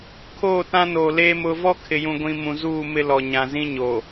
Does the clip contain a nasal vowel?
yes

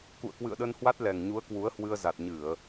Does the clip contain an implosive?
yes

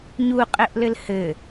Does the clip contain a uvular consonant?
yes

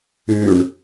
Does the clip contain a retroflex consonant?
yes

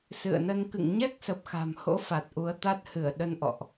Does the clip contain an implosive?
yes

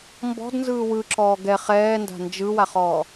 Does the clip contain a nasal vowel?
no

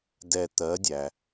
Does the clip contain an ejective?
no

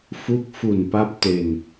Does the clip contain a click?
no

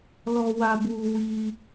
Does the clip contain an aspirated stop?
no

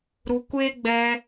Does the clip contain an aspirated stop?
no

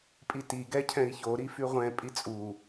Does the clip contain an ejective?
yes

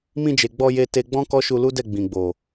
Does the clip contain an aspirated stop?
no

